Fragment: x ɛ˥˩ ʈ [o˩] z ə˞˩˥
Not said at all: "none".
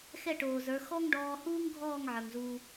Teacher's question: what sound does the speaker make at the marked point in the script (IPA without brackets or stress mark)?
oː˩